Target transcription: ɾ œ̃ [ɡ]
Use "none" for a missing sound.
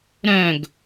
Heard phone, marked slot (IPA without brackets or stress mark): ɡ